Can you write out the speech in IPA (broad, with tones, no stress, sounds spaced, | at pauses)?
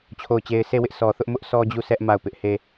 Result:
t͡ɕʰ o˦˨ ʊ̯ t͡ɕ e˦ ɪ̯ sʰ e˦˨ w ɪ˦ ʔ s ɔ˨ θ ʊ˦ ʔ m ʊ˦ ʔ s ɔ˦ d͡ʑ u˦˨ s ɛ˦ ʔ m a˦˨ ʊ̯ p ɪ˦ ʔ h e˦